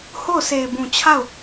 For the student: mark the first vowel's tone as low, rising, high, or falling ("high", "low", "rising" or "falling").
falling